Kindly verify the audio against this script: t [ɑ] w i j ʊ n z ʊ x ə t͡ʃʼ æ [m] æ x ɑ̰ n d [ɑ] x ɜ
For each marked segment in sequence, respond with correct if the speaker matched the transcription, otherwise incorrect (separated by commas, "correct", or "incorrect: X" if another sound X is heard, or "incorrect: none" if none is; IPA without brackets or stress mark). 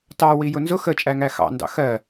correct, incorrect: ŋ, incorrect: ɑ̰